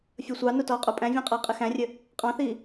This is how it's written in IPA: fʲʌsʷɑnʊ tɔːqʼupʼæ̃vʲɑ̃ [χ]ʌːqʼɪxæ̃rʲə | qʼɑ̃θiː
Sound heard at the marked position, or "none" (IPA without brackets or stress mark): qʼ